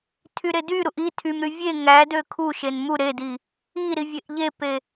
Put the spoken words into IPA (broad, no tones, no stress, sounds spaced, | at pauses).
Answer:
tʰ y ɾ e d y ɾ u ʔ i tʰ y m ɾ y vʲ e ŋ æ d ø kʰ u ʃ e n m u ɾ e d i | i ɾ i vʲ e ʔ ʎ e p e